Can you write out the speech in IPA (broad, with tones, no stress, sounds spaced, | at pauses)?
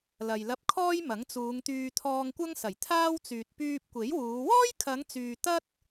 l ɐ˨ j l ɐ˧ p̚ kʰ ɔː˥ j m ɐ˨˥ ŋ t͡s uː˨˧ ŋ t̪ yː˧ t̪ʰ ɔː˧ ŋ kʷ ɐ˥ ŋ s ɐ˨˩ j t̪ʰ aː˥ w t͡s yː˨ t̚ p yː˧ p̚ kʷ e˨˥ j w uː˨˧ w ɔː˥ j kʰ ɐ˨˧ ŋ t͡s yː˨ t̪ ɐ˥ t̚